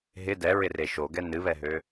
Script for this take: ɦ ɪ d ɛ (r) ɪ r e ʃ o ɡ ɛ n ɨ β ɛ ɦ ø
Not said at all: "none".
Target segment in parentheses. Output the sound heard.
ɹ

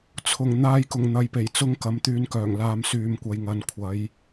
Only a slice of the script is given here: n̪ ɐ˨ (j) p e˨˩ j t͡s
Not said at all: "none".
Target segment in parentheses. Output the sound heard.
j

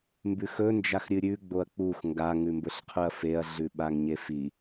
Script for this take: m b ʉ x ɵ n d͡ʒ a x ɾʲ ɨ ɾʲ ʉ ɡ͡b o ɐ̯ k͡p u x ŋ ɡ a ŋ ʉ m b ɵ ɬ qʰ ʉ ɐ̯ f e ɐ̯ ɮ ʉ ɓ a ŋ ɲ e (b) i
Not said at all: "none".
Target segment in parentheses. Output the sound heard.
f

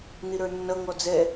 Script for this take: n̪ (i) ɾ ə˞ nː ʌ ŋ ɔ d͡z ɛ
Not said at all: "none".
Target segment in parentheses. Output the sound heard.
i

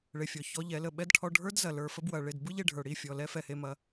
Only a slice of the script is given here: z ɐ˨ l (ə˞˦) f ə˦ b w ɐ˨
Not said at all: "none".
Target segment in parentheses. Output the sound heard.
ə˞˨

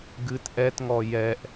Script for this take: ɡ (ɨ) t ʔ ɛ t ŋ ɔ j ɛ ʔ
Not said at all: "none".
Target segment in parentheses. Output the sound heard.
ɨ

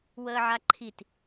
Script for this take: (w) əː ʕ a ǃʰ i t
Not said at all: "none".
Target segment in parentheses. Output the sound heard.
w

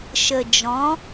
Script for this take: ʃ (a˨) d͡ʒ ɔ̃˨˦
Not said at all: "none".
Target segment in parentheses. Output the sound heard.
ə˨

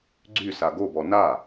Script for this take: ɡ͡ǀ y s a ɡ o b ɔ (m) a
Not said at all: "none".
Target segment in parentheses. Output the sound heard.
n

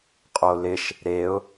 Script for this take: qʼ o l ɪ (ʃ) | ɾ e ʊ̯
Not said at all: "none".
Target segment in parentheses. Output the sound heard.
ʃ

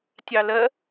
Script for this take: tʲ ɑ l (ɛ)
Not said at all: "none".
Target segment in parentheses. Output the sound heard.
ɜ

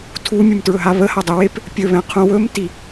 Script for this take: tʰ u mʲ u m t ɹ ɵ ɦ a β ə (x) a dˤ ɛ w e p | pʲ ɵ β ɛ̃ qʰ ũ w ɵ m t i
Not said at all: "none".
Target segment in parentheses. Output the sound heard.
h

